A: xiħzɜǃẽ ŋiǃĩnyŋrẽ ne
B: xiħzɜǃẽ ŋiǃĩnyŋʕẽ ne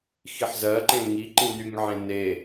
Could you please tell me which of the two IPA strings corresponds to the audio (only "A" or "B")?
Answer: B